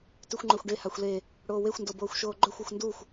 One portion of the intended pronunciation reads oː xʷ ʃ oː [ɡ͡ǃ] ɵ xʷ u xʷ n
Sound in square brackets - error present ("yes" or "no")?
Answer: no